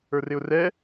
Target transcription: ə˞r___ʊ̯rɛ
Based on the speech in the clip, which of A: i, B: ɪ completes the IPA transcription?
B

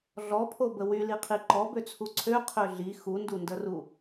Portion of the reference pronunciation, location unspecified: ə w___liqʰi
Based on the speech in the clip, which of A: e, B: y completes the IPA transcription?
B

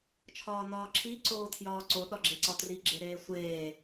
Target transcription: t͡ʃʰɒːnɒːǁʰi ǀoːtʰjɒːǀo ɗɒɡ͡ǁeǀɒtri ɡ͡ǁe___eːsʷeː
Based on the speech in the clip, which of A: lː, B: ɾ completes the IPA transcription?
B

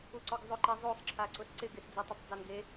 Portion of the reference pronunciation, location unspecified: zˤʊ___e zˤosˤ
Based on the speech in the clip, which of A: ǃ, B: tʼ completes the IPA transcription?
A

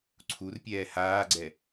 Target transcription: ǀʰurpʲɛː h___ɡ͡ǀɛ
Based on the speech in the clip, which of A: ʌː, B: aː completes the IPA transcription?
B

